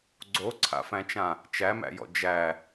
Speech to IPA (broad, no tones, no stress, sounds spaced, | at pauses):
ɡ͡ǀ o ǀʰ a̰ f æ̃ t͡ʃ ã | t͡ʃ æ m æ̰ j ɔ̰ d͡ʒ æ